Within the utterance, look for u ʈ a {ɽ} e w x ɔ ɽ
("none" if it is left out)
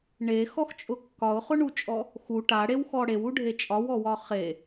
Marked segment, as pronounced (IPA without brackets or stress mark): ɽ